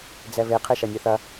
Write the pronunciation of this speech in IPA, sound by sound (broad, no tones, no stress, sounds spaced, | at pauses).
d͡z ɛ β e qʰ e ʃ ɐ nʲ e θ ɐ